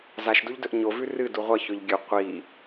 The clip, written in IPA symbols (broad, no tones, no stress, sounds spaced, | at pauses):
z a ʃ d u ʎ d ɵ ʔ ɲ o v ʉ r ɨ d u ʁʷ ɐ ç ɵ ʎ ɡʲ ɵ qʷ i